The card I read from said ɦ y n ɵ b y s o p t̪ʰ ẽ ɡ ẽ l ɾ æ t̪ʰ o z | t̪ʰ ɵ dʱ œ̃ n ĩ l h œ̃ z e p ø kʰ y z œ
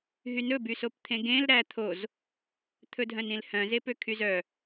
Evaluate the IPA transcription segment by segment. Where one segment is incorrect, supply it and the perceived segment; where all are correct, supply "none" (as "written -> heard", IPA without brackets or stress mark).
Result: none